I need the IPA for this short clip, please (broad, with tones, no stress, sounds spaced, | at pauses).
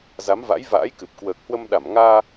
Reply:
z a˨˦ m v a̰˧˥ j v a̰ː˧˥ j k ɨ˨˩ p̚ k w əː˨˩ k̚ h w ə˧ m ɗ a˧˩ m ŋ aː˧